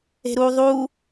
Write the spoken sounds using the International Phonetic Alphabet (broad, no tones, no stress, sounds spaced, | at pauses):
e̤ ɾ u ðˤ u